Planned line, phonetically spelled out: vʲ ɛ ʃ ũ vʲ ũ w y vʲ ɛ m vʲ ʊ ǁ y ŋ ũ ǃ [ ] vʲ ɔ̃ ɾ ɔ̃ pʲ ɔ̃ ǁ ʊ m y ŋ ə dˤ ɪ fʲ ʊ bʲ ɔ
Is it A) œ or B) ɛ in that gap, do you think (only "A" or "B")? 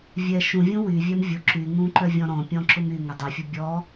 A